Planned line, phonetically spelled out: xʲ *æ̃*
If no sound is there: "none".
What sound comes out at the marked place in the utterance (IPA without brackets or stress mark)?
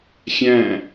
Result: æ̃